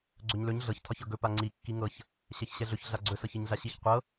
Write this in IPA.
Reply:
ɡ͡ǀ ɵ ɲ l ɵ ɲ ɮ ɤ ç tʰ ɒ ç ɤ ɡ ɵ p a ŋ͡ǀ i kː i ŋ ɤ ç | ɕ ɛ ç ɕ ɛ ɮ ɵ ç ɮ a ɡ͡ǀ ɵ s ɤ ç i ɲ ɮ a ɕ i ç qʷ ɤ

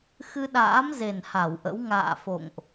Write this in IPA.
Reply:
x ɨ˧ ɗ a̰ː˧˥ m z e˨˩ n h a˧˩ w ʔ ə̰˧˥ w ŋ a̰ː˧˨ f o̰˧˨ ŋ ʔ

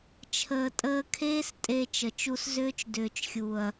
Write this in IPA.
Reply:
t͡ʃʰ əː˨ tʼ əː˧ kʰ eː˦ s tʼ e˧ t͡ʃ ə˨ t͡ʃ u˧ s z ʏː˦ t͡ʃ d ʏː˨ t͡ʃ xʲ u˨ ɐ̯

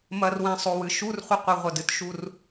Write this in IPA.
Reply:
m ɐ r w ɛ̃ sˤ o w ɨ ʃ u r χʷ ɨ qʷ i ʁʷ ɐ d ɨ t ʃ u r

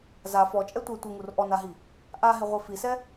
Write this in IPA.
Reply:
z a f ɔ t͡ʃʼ ɛ tʷ ɛ tʷ ɪ ŋ u r ʔ ɔ n a ɦ i | ʔ a ɦ ɪ ʁʷ i f i s ɛ

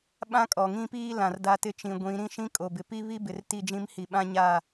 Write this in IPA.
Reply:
ɓ ã˦ kʼ ɔ˨ ŋ ĩ˦ p iː˦ l ã˨ r d a˦ t ɪ˦ t͡ʃ ĩ˨ ɡʷ ĩ˨˦ ɾ ĩ˦ ʃ ĩ˦ kʼ o˨ b ɪ˨ p i˦ β i˦ b ɪ˨ r t i˦˨ d͡ʒ ĩ˦ m h i˨ ɓ ã˦ ɲ a˦˨

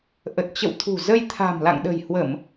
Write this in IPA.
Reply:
ʔ ə˨˩ t̚ t͡ɕ ə̰˧˨ w t̪ʰ ṳ˨˩ z ə˧ j t̪ʰ a̤˨˩ m l a̰˧˨ ŋ ɗ ə̤˨˩ j h w ə˧˩˨ m

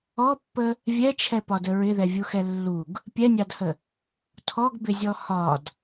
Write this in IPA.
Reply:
ɔ pː ə | vʲ ɛ t͡ʃʰ ɛ p ɒ d ə ɹ ɪ ð ɛ vʲ u x ɛ lː u ɡ | pʲ ɛ nʲ ɑ d h ə | tʰ ɔ ɡ b ɪ zʲ ɔ h ɒ d

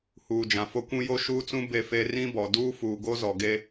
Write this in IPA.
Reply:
h uː˨ d͡ʒ ã˨ f o˦ kʷ ũ˦ j o˦ ʃ uː˦ t͡s ũ˦ b e˦ f e˦ r ĩ˦ b ɔ˨ d uː˦ f uː˨ ɡ o˦ z ɔ˨ ɡ e˦

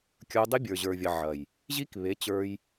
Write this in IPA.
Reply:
kʲ ə˞˦ dˤ e˦ bʲ ə˞˨ ʑ ə˞˨ vʲ ɐ˨ ʕ ɐ˨ j | ʑ i˦ k β e˨˦ t͡ɕ ə˞˦ j

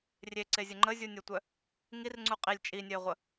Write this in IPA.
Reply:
rʲ e ǀ e zʲ ə ŋ͡ǃ ə zʲ u nʲ o tʷ œ | ŋ i r ŋ͡ǀ u qʼ i lʲ t͡ʃʼ i nʲ œ ɪ̯ ʁʷ ə

